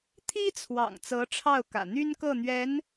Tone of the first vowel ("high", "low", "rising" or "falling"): high